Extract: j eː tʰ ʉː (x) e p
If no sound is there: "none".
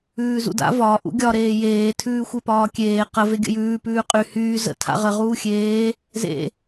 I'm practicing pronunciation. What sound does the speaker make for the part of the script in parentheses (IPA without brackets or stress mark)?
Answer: xʷ